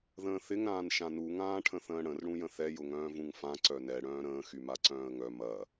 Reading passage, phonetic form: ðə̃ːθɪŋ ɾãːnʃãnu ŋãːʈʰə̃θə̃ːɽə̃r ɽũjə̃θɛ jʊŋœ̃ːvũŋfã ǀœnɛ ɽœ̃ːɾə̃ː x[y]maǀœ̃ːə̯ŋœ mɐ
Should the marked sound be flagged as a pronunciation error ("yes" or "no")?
no